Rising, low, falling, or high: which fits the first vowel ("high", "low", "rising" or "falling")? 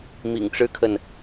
low